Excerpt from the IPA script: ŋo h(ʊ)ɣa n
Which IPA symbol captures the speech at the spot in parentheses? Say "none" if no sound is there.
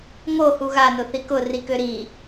u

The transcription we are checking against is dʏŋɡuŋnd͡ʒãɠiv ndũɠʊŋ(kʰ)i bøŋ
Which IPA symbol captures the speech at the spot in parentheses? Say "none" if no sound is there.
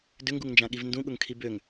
kʰ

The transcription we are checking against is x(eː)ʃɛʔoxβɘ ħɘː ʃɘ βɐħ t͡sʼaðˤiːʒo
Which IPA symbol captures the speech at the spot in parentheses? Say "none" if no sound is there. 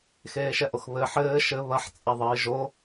eː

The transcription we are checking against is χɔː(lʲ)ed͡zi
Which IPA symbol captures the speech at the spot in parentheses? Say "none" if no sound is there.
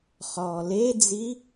l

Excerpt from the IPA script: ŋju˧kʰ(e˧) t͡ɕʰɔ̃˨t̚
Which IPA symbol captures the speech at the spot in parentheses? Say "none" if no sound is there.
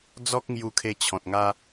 e˧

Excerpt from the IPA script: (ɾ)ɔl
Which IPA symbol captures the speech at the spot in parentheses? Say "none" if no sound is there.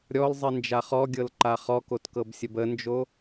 ɾʲ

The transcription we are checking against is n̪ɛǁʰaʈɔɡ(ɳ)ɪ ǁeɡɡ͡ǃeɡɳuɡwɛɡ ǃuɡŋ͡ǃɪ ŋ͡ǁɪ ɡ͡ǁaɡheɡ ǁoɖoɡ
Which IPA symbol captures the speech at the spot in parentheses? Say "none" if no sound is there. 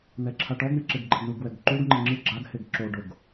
ɳ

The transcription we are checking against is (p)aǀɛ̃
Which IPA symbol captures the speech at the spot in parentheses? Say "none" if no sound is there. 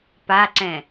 p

